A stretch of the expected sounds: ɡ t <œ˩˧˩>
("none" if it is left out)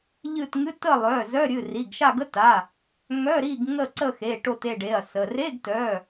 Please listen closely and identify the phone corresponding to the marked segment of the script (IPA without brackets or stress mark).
œ˩˧˩